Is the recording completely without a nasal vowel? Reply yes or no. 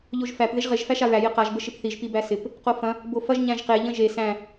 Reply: no